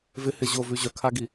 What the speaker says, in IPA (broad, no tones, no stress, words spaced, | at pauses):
vɪhɪ ʑovʉ ʑœkʰaɡi